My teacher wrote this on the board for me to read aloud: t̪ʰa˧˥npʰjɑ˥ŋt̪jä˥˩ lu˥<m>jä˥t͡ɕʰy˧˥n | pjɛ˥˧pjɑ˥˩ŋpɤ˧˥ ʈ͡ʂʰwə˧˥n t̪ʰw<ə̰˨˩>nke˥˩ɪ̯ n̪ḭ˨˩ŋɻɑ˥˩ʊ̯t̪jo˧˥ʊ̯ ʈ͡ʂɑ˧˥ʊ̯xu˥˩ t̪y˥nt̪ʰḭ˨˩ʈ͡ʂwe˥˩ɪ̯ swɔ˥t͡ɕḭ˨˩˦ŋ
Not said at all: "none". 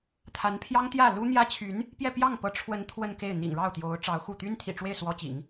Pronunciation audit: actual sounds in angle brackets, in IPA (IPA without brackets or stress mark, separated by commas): n̪, ə˥˧